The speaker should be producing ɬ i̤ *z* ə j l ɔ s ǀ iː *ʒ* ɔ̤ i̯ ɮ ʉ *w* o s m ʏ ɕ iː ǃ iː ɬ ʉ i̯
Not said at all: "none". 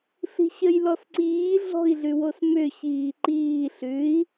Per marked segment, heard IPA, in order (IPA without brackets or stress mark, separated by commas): ɕ, ɮ, w